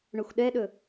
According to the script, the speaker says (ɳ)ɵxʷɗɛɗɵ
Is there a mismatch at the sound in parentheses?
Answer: no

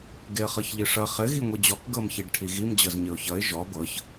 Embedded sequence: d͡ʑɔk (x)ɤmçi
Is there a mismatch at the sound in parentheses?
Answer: yes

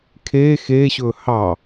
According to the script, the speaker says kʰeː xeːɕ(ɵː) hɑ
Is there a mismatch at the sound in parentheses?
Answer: no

